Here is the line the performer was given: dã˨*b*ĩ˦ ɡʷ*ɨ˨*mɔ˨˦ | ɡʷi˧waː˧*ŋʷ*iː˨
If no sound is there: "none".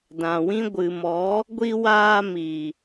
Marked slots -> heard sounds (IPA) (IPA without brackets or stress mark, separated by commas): w, ɨ˨, m